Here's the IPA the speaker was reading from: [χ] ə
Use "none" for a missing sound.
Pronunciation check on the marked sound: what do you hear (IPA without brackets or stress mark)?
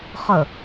χ